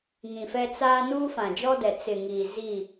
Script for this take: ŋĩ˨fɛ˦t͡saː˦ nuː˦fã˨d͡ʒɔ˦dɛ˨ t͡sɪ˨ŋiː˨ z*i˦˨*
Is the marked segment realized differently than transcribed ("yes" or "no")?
no